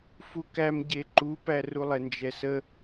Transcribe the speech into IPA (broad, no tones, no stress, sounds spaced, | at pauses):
f u k æ m ɟ e ǃ u p æ r u lˠ ɛ n d͡ʒ ɛ s ə